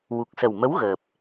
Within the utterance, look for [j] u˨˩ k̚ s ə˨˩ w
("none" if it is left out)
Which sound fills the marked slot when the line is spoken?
w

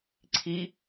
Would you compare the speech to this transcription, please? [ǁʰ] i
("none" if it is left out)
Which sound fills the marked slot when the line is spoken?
ǀʰ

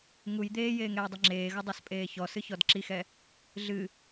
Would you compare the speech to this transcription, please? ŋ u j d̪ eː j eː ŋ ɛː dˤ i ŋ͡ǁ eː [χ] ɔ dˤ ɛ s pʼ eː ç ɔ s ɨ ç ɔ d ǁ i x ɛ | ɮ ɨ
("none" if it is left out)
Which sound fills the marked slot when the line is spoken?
ɣ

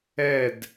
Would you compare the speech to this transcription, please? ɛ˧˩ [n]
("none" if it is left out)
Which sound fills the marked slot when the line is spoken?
d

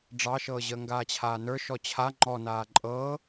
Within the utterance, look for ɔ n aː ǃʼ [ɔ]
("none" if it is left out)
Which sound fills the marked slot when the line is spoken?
ɤ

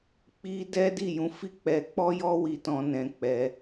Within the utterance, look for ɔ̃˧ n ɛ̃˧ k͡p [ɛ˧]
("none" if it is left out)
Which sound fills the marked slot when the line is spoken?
ɛ˧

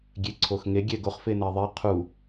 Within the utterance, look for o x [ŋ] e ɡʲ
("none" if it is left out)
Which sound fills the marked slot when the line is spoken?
ŋ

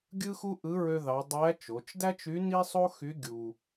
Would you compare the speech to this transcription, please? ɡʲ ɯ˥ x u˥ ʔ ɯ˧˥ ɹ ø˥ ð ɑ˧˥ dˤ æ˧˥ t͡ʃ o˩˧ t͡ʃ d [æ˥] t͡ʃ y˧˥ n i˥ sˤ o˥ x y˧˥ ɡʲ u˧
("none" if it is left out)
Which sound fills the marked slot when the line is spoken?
æ˥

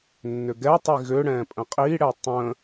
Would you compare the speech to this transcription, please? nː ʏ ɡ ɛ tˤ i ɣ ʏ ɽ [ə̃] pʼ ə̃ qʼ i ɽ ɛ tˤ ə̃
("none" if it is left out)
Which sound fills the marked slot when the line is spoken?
ɛ̃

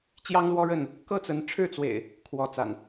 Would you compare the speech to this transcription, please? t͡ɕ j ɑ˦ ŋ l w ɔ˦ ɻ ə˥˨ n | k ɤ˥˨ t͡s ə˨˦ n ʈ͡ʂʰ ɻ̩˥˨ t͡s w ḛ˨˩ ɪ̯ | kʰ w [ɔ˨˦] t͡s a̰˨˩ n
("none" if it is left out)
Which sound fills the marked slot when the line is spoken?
ɔ˨˦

